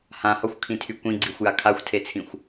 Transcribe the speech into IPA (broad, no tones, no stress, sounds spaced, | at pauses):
h ã h ɒ xʷ kʰ ĩ tʰ y kʷ ĩ ɡ͡ǀ i xʷ j a kʰ a xʷ tʰ e t͡sʰ ĩ xʷ